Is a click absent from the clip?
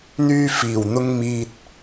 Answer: yes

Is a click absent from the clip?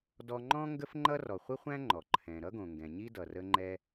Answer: no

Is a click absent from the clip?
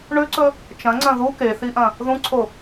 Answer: no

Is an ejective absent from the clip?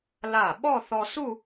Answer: yes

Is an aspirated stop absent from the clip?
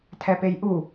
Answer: no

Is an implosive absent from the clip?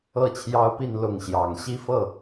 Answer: yes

